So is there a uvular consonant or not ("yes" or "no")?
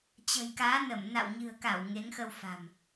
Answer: no